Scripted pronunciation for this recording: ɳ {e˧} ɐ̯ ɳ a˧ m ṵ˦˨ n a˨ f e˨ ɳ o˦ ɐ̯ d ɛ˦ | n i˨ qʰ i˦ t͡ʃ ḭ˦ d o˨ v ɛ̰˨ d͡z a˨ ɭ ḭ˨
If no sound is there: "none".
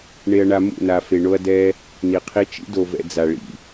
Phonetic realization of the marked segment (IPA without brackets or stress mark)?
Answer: e˧